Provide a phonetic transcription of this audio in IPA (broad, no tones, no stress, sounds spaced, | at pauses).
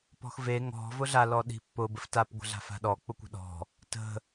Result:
p ɔ̤ x v e ŋ ɔ̤ v ʊ ɮ a l ɔ ɗ i̤ pː ʊ b ə f t a p ɡʷ ə̤ ɮ a̤ f a̤ ɗ ɔ k͡p ʊ kʷ ə̤ ɗ ɔ̤ | t ə̤